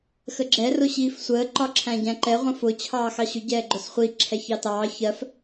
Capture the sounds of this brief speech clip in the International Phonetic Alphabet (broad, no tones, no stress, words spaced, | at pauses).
xəɡ͡ǁɛ rʊɕiːfsʷəː ǃɒǁʰæ̃ɟæ̃ǃɛ ʁʷə̃fʊ t͡ɕʰɑːxɑɕʊ ɟɛːɡ͡ǃʊsχʷi ǁʰɛçɑtɑː çɜf